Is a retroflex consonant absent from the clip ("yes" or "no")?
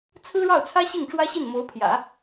no